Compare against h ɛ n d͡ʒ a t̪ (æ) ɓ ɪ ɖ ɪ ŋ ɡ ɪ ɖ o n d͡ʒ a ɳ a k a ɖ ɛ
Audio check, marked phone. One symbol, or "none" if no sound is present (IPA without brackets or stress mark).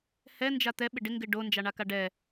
ɛ